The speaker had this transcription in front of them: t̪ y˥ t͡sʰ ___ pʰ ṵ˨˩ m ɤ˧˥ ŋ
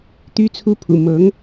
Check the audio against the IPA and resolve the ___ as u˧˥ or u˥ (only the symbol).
u˥